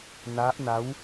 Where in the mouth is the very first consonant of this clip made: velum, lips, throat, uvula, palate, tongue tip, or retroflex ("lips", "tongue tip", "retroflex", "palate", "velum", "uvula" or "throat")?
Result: tongue tip